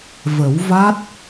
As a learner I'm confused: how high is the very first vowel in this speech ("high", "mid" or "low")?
mid